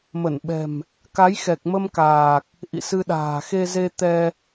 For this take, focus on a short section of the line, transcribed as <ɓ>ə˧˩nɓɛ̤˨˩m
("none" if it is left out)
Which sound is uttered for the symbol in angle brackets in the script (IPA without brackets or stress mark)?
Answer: m